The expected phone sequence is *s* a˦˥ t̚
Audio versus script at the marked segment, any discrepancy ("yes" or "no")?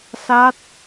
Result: no